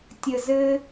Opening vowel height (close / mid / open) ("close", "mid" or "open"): mid